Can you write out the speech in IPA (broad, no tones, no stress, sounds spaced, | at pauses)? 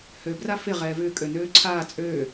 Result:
h ø b r a f ɪ ʁ ɛː v ʏː kʼ ø n øː ǀʰ aː t͡sʼ øː